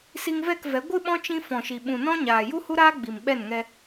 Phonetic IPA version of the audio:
si˧ŋvɛ˦˨kvɛ˨˦ ɡʷɨ˦ɓɔ̃˦t͡ʃĩ˧ fɔ̃˨ʃi˨ ɓũ˨nɔ̃˦ ɲaː˨ ju˦hu˦ɾaː˦ ɡ͡bi˨mɓɛ˦˨nŋɛ˧

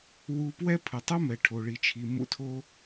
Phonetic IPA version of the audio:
wu˧pwɛ˥ pʰɯ˩tˤu˥mɛ˩ ʈʰo˩ɭi˩t͡ʃʰi˩ mṵ˧tʰo˧

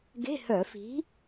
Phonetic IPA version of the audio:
ɡe̤˧˥˧hœ˧˩˧fi̤˨˥

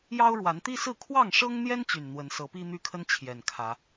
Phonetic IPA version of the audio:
jɑ˦ʊ̯ɻwa˨˦nt̪i˦sɹ̩˥˨ kʰwɑ˥˨ŋʂɤ˦ŋn̪jɛ˦n t͡ɕy˨˩nn̪wə˨˦nsɤ˨˦pi˦ n̪y˦kʰə˦n t͡ɕʰjɛ˨˩nkʰä˨˦

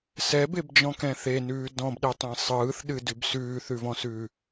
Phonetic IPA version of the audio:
sɛbebd͡ʒɔ̃kɛ̃ θenʉː dɔ̃bɗetˤẽ sˤɯːθɗɨdʉb sʉːθʉvɔ̃sʉː

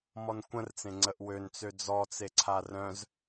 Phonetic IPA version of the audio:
mɔnkʷə̃rt͡sẽ ŋ͡ǀəʔwønt͡sø d͡zɔt͡seǀʰa rœ̃z

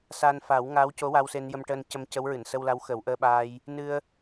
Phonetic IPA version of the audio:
saː˧nfa˨˩˦wŋaː˧˥wco˧˥ wa˧wse˧njə˧m ʈəː˧ncə˧m cə˧˥wɹɨ˨˩˨nsə˧wla˧˥w xə˨˩˦wʔəː˧ɓaː˧j | nɨ˧ə̯

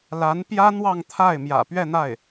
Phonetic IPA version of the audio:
la˧˥npjä˥n̪wɑ˥˧ŋt̪ʰa˥˩ɪ̯ mjä̰˨˩pɥɛ˥˧n̪a˥˩ɪ̯

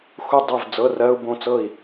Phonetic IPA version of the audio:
xu˥˨dˤɜ˥˨v d͡zɤ˧˥˧rɜ˧˥˧u̯bõ˥˨t͡sɤ˥˨i̯

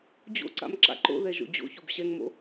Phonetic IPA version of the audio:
d͡ʑo̰ǀa̰m ǁa̰ǃo̰ðɛ ʒo̰d͡ʑo̰çob ɕɛŋmo̰

